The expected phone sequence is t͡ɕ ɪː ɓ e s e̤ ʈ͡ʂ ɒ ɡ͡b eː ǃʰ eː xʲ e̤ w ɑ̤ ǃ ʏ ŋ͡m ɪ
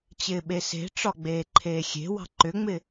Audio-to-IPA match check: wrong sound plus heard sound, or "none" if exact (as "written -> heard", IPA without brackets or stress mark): none